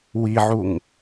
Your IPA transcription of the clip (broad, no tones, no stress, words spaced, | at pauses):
wiʕuŋ